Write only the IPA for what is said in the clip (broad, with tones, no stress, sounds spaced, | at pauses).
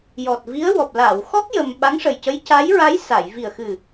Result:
j ɔ˨˩ t̚ v i˧˥ ə̯ w ɔ˨˩ p̚ l aː˨˩˨ w x ɔ˦˥ k̚ j ə˧ m ɓ a˧˥ ŋ ʂ ə˨˩ j c ə˧˥ j c a˧˥ j ɹ a˧˥ j s a˨˩˨ j v i˨˩ ə̯ x ɨ˨˩